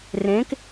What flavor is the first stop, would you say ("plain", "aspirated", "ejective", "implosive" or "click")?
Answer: plain